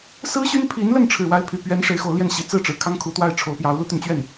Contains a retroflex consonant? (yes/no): yes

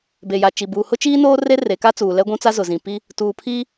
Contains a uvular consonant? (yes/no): no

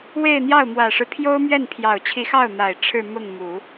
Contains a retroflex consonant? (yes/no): yes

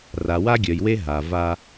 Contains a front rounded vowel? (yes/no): yes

